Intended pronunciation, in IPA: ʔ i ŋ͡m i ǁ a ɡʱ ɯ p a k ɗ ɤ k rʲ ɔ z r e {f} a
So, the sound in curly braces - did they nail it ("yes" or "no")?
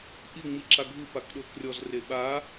no